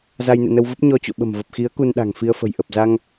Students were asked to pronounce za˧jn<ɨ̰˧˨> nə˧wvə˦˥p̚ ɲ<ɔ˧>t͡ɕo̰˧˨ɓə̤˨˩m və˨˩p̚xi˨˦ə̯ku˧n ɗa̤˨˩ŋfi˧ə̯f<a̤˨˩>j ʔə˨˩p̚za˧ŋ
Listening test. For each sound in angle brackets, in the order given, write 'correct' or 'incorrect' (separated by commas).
correct, correct, incorrect